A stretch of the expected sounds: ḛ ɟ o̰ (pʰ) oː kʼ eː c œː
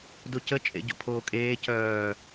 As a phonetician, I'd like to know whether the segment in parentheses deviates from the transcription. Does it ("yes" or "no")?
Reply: no